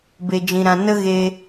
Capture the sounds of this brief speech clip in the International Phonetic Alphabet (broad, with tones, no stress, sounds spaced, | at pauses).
b e˧ d͡ʒ ĩ˧ ɾ ã˧ n ə˦ ɣ e˧